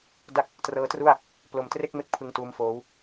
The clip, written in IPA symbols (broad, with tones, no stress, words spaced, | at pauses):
da˥˩k̚ | trɤː˦˥tru˥˩a̯ | plo˨˩mtre˥˩k̚me˥˩k̚ pʰɯ˧ŋtuː˦˥mfoː˦˥w